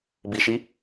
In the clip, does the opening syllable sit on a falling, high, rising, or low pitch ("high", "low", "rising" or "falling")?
low